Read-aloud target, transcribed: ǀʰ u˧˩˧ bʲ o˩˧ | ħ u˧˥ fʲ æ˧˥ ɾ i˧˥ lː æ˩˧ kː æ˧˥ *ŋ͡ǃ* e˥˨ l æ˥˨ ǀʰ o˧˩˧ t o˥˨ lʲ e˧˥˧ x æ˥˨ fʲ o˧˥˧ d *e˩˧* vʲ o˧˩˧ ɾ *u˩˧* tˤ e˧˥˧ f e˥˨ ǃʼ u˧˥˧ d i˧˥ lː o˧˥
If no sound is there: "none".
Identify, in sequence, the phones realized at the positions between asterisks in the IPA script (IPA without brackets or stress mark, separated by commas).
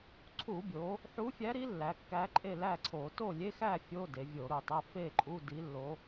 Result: ǃʼ, e˩˧, u˩˧